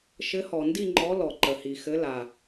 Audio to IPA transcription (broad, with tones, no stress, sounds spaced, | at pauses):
ʃ ɘ˨˦ h ɔ˩ n d i˦˨ ŋ͡ǃ ɔ˨˦ l ɔ˩ ǃ ə˩ h i˩ x ɘ˨˦ l a˩